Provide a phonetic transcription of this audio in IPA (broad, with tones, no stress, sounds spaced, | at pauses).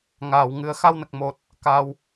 ŋ aː˨˩˨ w ŋ ɨ˨˩˦ ə̯ x a˧ w n ə˨˩ k̚ m o˨˩ t̚ | k a˧ w